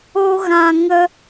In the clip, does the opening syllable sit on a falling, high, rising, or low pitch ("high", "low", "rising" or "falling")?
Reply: high